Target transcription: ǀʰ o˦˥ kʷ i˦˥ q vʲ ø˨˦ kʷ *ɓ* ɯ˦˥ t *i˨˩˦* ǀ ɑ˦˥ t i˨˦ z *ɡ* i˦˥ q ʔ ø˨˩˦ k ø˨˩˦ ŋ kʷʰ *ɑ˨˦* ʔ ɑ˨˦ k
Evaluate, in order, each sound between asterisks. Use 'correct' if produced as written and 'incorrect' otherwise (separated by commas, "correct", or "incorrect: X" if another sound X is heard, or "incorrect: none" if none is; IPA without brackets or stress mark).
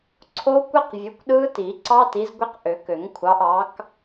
incorrect: ɗ, correct, incorrect: ɡʷ, correct